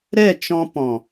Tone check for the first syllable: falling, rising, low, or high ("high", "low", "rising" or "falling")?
falling